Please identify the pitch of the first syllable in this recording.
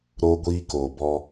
high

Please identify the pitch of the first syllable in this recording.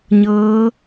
rising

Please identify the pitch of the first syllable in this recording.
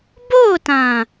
falling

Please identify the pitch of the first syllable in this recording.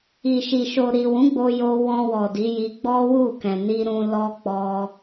low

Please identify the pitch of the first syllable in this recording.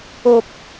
high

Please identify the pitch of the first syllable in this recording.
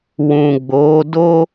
low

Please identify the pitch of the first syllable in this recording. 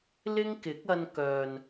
high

